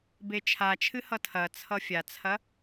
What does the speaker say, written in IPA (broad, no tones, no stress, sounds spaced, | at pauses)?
b e t͡ʃʰ a t͡ʃʰ ɨ h ʌ tʰ ɐ t͡sʰ ʌ fʲ a t͡sʰ ɐ